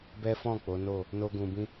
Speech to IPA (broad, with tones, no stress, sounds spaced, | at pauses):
b ɛ˦ f ɔ̃˦˨ k͡p o˨˦ n o˦˨ | n o˦ ɡ ũ˧ b ĩ˦